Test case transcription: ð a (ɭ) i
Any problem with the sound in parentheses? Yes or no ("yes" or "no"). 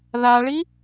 no